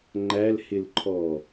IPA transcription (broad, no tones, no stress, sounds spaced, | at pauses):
ŋ͡ǃ æ l h ɪ l ǃʰ ɔ